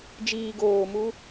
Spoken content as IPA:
d͡ʒ iː ɡ oː m u

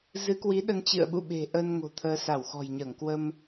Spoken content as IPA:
z ɨ˨˦ k w i˨˦ ɗ ə˧ n t͡ɕ ɨ̰˧˨ ə̯ ɓ ṵ˧˨ ɓ e̤˨˩ ʔ əː˧ n ŋ o̤˨˩ t̪ʰ əː˨˦ s a˧˩ w x ɔ̤˨˩ j ɲ əː˧˩ ŋ k w ə˧ m

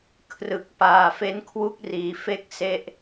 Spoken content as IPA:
kʰ r ɯ˨˩ k̚ p aː˨˩ f e˦˥ n kʰ w u˦˥ k̚ r iː˩˦ f e˦˥ k̚ s e˦˥ ʔ

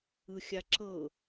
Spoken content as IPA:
ɯ xʲ a ǁ ɤ

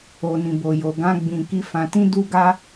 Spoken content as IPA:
o˧ n ĩ˧ b o˧ j o˧ ɡ ã˦ ɡ͡b ĩ˧ k i˦ f ã˧ t ĩ˦ d u˦ ɡ a˦

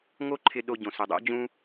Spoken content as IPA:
ŋ o˥ ǃʰ ɪ˧ ɗ o˧ ɟ õ˩ s ʊ˩ dˤ o̰˥ d͡ʑ ũ˥

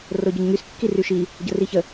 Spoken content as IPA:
r o ɟ œ ɲ ŋ y s kː i r y ʃ i | ɟ ə r i ç ə

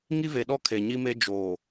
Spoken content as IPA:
ŋ i˦ v e˨ ɗ ɔ˦ kʰ e˨ ɲ i˦ m e˦ d͡ʒ oː˨

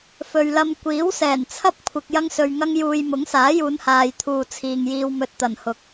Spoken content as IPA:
f ɵ˨ ɥ l ɐ˧ m kʷ iː˨˥ w s ɛː˨˩ n t͡sʰ ɐ˥ p̚ kʷʰ ɪ˨ k̚ j ɐ˥ ŋ s ɵ˧ ɥ ŋ ɐ˥ ŋ j uː˧ j m ʊ˨˥ ŋ s aː˨˥ j uː˨˧ n h aː˨ j t̪ʰ uː˨ t͡sʰ iː˨ ŋ j iː˧ w m ɵ˧ t̚ t̪ ɐ˨˩ n h ʊ˨˥ k̚

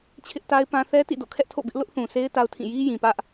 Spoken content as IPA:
t͡ɕʰ ɪ˦ ʔ t a˦ ɪ̯ p ã˦ θ ɛ˦ t ḭ˦˨ d o̰˦˨ kʰ ɛ˦ ʔ tʰ o̰˦˨ b ɪ˦ ʔ l ʊ˦ ʔ θ ũ˨ sʰ e˦ ɪ̯ t a˦ ʊ̯ tʰ ĩ˦˨ j i˦ j ĩ˨ p ä˦ ʔ

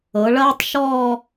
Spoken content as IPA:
ɤ˩˧ ɭ ɐː˥ tˤ ʃ ɔː˥˧

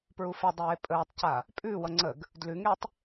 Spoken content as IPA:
p ɹ u f e dˤ eː pʼ əː tˤ c a | pʼ ʉː w ʌ ŋ͡ǀ ə ɡ | d l ʉ ŋ e tˤ

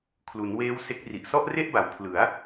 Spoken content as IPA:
kʰ l u˩˦ n w eː˦˥ w s e˦˥ k̚ r i˨˩ ʔ s ɔ˥˩ ʔ r e˥˩ ʔ b a˩˦ w pʰ l ɯ˩˦ a̯

